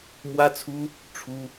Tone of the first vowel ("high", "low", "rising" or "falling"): high